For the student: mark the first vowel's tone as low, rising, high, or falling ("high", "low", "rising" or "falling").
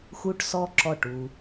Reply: high